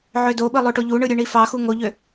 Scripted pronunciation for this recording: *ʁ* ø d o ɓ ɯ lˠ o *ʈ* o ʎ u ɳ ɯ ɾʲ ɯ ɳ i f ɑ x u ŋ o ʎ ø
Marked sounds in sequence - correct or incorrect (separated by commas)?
incorrect, correct